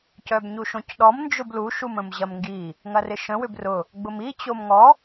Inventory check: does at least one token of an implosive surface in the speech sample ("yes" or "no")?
yes